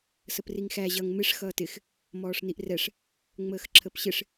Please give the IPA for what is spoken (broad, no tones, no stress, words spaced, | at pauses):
səpriŋxæ ʑʌŋ mɪʂ xʌːtɪx | mɔːʂniʔrɛʂ | ŋ͡məːxǁʰəpɕɪʂ